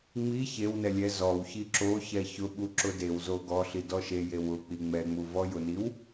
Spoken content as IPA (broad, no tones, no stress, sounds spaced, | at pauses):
ŋ͡m i ç e w n ɛ lʲ ɛ z ɔ w ç i ǁ o ç ɛ ç ʊ ɓ u ǁ ʊ d e w z o ɡ ɔ ɬ i d ɔ ʃ e j e w ʊ k͡p i ŋ͡m ɛ ŋ͡m u v ɔ j ʊ n i w